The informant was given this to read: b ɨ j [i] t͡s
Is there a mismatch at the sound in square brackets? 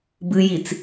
no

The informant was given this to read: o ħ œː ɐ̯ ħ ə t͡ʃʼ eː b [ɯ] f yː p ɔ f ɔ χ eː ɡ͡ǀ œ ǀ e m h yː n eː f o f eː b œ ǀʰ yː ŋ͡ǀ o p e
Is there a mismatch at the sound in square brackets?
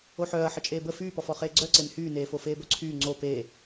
yes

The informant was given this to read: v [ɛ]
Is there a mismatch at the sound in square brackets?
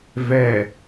no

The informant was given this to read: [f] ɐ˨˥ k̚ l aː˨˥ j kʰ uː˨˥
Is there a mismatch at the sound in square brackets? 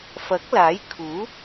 no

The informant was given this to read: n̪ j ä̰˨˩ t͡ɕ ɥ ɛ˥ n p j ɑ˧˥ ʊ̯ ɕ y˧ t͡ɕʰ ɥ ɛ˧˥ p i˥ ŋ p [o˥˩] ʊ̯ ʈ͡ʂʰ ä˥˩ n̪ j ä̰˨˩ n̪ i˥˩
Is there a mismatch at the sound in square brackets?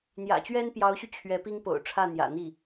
yes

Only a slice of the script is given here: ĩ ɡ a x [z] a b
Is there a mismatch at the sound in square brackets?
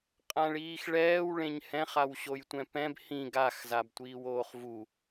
no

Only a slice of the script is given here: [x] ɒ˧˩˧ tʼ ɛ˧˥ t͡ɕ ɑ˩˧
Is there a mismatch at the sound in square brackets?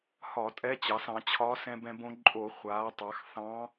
yes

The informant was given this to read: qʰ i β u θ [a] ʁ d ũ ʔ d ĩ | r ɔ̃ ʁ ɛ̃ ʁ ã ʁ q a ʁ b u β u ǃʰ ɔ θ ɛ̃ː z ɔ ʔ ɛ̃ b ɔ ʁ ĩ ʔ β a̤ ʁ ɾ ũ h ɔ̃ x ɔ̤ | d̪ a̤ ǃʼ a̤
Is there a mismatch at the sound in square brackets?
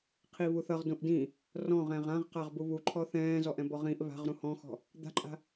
yes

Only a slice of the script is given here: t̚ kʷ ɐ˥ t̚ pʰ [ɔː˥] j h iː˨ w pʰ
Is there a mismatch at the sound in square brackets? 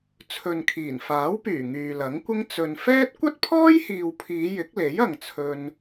no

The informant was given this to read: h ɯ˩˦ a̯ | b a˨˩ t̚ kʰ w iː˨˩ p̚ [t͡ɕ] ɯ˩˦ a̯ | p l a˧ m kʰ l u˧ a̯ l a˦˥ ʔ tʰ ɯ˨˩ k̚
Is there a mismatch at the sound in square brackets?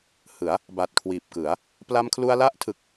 yes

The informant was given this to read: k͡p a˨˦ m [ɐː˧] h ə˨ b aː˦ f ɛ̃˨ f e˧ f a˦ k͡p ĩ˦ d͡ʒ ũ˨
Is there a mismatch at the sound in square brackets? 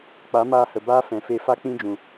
yes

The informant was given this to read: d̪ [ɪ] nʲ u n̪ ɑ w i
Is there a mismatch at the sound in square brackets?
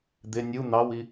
no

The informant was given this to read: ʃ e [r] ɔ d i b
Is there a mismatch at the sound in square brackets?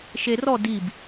no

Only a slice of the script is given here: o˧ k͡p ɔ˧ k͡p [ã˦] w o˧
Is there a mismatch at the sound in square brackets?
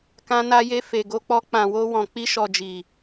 yes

